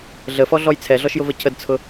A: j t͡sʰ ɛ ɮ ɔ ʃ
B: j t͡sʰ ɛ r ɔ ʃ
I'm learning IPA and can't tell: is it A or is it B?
A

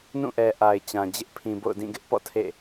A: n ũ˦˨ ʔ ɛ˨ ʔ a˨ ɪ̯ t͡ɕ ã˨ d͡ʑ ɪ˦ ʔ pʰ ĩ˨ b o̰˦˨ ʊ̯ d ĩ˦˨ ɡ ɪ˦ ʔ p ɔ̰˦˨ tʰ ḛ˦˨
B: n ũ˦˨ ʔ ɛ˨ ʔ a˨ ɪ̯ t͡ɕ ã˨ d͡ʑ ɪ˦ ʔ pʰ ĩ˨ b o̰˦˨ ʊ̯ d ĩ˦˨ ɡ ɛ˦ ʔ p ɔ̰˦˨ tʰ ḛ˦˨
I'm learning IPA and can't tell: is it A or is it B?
A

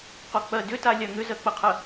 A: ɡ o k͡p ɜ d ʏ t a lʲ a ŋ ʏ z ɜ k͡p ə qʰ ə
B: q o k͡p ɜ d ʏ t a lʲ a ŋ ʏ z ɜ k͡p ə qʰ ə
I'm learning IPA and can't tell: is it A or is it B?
B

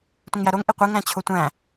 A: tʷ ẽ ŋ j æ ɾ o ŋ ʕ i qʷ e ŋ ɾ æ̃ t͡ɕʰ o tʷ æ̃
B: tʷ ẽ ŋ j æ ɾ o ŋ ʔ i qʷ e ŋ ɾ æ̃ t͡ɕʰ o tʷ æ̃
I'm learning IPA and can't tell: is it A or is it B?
B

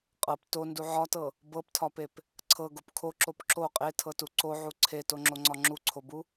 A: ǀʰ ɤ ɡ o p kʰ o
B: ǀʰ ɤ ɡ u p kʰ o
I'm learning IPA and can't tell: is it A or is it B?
A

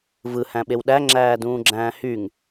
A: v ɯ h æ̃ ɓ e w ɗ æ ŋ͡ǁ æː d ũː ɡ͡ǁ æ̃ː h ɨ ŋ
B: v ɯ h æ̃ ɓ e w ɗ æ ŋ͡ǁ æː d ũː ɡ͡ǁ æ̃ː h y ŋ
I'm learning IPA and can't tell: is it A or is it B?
B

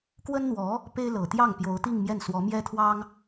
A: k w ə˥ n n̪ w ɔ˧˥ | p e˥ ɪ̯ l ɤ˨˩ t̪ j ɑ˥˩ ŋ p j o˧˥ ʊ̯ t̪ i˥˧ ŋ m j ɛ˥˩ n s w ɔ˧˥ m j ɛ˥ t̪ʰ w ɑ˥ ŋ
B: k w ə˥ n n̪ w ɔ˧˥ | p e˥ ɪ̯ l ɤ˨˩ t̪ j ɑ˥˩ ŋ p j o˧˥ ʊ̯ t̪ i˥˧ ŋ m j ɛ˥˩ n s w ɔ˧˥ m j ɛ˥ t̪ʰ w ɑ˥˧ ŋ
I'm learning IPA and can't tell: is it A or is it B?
A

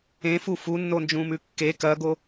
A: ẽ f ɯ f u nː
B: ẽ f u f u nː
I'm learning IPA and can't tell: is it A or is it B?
B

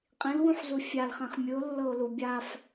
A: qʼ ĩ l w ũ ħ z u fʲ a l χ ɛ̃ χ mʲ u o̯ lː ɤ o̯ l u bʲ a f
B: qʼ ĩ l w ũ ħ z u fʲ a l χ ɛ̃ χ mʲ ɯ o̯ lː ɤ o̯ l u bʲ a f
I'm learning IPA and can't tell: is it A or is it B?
B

